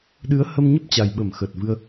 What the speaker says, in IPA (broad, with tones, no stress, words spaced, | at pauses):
ɗɨ˨˦ə̯ hə˧mɲə˦˥p̚t͡ɕa˨˩jɓə˧˩m xə˨˩t̚vɨ˧ə̯